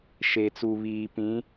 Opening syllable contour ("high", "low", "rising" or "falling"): low